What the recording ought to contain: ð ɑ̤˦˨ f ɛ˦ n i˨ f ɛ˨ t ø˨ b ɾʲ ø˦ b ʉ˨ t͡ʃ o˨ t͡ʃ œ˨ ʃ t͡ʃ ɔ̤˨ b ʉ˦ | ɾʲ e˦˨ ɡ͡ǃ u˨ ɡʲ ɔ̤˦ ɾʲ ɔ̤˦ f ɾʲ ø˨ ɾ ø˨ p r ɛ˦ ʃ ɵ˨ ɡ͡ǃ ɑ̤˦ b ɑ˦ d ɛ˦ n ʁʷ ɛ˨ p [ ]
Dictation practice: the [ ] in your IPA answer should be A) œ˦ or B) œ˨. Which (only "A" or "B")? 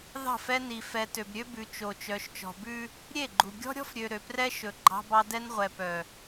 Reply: B